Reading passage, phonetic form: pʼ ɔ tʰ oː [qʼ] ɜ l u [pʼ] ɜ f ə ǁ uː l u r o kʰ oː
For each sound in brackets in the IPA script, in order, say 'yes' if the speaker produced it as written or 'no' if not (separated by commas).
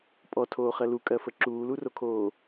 no, no